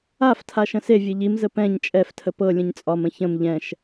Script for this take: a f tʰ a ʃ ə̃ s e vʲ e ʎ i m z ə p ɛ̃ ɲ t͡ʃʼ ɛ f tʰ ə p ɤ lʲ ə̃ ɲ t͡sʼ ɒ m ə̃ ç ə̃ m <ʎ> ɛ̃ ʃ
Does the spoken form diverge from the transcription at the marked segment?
no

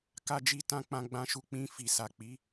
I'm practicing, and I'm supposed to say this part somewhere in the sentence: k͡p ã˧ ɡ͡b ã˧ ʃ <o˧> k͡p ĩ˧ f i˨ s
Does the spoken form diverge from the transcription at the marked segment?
yes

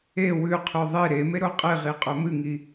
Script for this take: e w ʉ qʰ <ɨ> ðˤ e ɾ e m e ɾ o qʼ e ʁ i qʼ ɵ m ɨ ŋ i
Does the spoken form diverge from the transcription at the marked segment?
yes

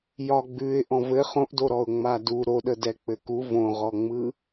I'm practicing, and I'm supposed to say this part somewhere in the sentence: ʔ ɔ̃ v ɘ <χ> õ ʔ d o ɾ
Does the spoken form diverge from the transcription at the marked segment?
no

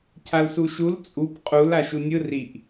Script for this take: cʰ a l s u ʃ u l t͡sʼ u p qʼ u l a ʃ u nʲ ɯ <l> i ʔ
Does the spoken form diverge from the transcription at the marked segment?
yes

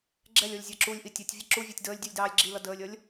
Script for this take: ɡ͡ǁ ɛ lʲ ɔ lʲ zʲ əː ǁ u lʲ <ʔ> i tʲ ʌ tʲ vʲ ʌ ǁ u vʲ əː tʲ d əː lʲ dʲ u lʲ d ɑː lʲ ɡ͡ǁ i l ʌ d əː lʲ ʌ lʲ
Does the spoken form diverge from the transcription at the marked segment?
no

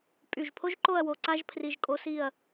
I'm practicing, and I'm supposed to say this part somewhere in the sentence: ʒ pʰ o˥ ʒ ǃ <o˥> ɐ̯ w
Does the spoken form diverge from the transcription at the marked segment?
yes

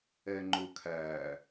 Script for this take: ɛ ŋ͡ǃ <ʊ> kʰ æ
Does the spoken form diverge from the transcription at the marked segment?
no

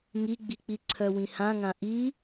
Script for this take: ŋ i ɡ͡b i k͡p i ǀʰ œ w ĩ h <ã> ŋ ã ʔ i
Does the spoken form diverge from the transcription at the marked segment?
no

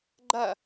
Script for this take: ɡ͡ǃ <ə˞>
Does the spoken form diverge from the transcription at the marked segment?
yes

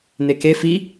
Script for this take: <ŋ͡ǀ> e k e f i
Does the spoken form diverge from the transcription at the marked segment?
yes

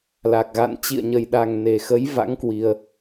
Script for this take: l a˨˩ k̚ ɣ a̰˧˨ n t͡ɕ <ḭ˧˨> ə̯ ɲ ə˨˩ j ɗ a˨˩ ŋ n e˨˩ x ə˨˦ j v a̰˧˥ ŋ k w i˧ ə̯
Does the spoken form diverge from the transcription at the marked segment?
no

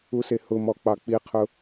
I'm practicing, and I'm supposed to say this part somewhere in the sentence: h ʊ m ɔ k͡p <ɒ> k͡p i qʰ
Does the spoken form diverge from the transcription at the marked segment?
yes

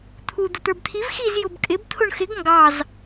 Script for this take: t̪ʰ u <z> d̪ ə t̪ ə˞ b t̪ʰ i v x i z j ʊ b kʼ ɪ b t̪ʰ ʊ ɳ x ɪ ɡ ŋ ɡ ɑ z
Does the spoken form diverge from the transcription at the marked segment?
yes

